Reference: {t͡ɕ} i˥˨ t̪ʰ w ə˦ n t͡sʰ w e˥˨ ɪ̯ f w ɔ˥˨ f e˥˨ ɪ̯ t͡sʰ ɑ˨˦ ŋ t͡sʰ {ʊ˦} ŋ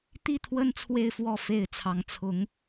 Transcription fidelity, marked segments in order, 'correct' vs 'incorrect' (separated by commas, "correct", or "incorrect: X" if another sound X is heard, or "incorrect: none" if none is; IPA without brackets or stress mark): incorrect: t̪, incorrect: ʊ˨˦